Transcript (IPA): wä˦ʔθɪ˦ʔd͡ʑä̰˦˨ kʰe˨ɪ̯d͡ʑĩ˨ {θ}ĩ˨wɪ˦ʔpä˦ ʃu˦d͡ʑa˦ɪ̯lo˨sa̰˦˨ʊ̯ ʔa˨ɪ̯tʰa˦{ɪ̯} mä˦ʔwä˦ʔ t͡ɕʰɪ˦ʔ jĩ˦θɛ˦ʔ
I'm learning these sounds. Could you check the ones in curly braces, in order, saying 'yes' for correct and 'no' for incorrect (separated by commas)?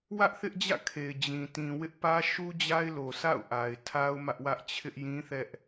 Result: no, no